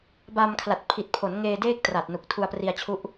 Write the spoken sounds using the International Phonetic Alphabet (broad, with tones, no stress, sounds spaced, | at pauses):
b a˧ m kʰ l a˨˩ t̚ pʰ i˨˩ t̚ pʰ o˩˦ n ŋ eː˧ d eː˥˩ k̚ t r a˨˩ t̚ n u˨˩ k̚ tʰ u˧ a̯ p r i˧ a̯ t͡ɕʰ u˦˥ ʔ